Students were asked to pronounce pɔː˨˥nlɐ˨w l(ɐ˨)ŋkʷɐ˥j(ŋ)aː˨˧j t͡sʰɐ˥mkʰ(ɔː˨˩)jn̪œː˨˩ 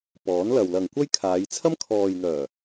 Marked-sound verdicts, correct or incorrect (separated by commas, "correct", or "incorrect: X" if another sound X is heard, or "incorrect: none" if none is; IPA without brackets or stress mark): correct, incorrect: kʰ, incorrect: ɔː˨